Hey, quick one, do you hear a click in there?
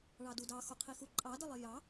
yes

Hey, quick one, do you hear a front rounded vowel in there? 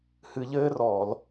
no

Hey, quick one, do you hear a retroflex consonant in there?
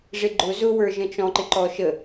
yes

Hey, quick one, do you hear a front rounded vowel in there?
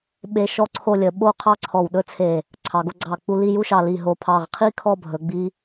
no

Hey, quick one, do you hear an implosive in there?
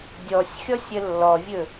no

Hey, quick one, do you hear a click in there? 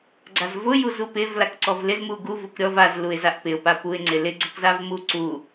yes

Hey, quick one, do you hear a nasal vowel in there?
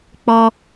no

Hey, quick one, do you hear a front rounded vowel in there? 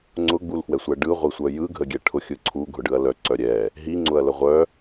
yes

